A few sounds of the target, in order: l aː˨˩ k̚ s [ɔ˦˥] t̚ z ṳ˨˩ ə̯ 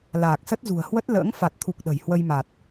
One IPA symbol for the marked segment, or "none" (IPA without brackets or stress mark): ə˦˥